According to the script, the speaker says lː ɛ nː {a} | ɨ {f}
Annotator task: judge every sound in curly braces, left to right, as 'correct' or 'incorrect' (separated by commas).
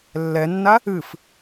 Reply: correct, correct